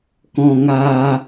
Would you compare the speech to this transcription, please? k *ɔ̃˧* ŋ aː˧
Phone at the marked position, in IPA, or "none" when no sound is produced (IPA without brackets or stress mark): ɔ̃˧